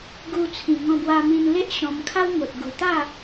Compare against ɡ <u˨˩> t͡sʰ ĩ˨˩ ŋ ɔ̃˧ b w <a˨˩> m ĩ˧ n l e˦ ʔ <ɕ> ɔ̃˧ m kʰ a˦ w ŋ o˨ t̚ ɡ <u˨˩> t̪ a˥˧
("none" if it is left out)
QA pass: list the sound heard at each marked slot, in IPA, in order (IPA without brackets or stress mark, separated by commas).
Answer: u˧, a˧, ɕ, u˨˩